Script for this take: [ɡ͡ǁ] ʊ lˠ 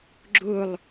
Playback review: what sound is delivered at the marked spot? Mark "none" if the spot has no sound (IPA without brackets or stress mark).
ɡ͡ǁ